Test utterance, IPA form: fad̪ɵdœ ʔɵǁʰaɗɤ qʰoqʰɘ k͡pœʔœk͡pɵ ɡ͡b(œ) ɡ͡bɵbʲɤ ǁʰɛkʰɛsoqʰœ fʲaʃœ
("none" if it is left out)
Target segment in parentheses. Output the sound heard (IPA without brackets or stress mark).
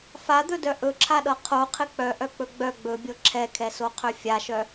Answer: œ